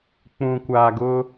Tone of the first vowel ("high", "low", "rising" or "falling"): low